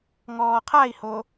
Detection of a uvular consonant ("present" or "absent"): present